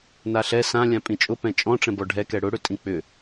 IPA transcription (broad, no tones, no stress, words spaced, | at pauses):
naɬɛ sãlʲã pʼĩt͡ʃʼʊpɛ̃ t͡ʃʼɔ̃ʈ͡ʂɛ̃ bɔɖʱɛkɛ ɽʊɽʏ tʼĩk͡pʏ